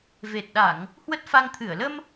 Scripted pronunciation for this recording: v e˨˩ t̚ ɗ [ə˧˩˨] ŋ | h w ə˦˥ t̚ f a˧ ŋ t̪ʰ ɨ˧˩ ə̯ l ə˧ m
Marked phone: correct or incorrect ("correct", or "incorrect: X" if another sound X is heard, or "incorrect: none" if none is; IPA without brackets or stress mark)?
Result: incorrect: a˧˩˨